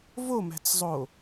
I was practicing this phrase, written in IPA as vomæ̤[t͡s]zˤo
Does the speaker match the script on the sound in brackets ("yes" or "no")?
yes